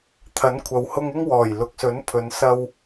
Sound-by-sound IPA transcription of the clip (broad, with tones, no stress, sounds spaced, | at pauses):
t̪ʰ ɐ˨˥ n kʷʰ ɐ˨ w h ʊ˧ ŋ ɪ˧ ŋ w ɔː˨˩ j l ʊ˨ k̚ s ɵ˨˥ n pʰ ɵ˨˧ n s ɐ˧ w